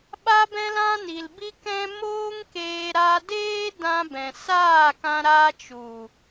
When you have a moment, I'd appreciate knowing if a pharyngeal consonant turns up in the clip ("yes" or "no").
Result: no